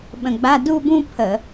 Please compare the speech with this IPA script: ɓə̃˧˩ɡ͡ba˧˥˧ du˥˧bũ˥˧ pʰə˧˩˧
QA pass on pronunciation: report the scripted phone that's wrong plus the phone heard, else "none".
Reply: none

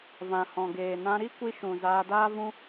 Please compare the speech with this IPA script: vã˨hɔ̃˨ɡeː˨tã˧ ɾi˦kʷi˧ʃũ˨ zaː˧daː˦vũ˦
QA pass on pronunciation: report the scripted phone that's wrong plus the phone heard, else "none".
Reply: t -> n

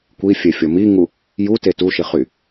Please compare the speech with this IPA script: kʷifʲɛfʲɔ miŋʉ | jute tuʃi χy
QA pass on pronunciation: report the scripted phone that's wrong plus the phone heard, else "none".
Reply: ʉ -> u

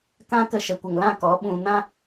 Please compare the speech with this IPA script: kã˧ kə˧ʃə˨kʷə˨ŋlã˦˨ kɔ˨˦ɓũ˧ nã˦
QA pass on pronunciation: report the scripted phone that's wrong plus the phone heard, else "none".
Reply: none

